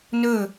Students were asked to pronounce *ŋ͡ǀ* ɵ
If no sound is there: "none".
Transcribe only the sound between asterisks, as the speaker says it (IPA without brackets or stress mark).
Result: n